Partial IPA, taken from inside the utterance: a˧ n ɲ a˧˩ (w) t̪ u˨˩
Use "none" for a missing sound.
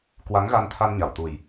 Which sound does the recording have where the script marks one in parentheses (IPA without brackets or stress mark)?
w